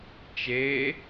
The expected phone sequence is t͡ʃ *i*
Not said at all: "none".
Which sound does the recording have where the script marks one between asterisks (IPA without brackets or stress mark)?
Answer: e